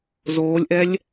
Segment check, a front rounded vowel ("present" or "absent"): absent